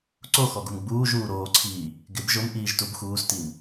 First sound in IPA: ǀ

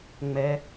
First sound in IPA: ŋ͡m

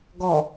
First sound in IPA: ɡ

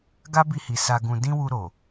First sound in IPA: ɡ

